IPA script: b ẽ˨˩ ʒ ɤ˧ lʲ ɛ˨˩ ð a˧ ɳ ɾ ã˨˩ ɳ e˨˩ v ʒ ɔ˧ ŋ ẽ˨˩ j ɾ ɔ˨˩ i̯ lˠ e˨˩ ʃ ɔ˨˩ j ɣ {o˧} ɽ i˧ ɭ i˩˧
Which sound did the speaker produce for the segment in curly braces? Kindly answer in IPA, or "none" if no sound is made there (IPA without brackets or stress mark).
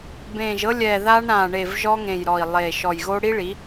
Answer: o˧